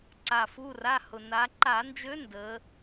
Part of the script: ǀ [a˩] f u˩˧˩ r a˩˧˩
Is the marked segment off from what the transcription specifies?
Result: no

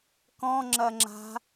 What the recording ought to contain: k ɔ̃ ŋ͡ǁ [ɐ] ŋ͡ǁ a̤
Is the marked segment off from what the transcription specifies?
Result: no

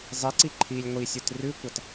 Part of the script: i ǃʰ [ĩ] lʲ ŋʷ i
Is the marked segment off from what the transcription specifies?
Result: yes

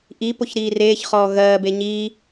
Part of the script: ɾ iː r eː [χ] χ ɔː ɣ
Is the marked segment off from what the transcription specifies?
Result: yes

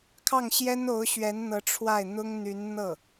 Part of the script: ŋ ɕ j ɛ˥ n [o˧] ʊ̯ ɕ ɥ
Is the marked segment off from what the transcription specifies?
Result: yes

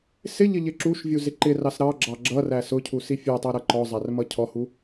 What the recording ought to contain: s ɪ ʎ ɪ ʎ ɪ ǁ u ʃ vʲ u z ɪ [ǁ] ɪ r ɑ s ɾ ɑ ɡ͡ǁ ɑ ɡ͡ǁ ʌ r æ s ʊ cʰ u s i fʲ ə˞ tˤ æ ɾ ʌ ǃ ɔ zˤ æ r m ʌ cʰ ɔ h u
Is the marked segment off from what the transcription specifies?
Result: yes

